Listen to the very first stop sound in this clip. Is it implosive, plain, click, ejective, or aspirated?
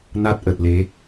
plain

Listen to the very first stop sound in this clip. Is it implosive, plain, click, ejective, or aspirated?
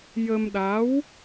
implosive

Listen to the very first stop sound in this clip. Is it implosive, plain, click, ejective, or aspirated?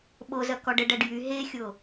implosive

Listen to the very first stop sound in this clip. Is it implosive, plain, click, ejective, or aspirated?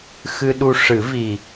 implosive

